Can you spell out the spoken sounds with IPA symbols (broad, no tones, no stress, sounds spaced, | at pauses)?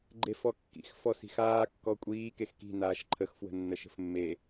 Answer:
ɡ͡ǃ e f ɔ kː ḭ x f ɔ s i̤ x aː kː ɔ kʷʼ iː k e x k i̤ n aː ʃ ǃʰ ə x f w ə̤ nː ə ʃ ə̤ f mː e